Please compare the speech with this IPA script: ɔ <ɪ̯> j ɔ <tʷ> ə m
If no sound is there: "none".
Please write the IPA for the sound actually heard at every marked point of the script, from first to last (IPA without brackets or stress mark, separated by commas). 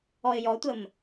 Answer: ɪ̯, tʷ